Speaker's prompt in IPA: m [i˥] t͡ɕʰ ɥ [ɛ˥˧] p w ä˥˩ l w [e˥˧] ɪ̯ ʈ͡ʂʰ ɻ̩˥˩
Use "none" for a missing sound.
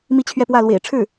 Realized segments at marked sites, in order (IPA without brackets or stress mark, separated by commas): i˥, ɛ˥˧, ḛ˨˩